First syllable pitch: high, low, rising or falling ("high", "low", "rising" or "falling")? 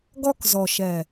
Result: high